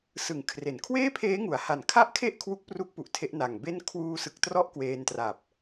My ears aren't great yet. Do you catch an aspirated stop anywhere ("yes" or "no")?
yes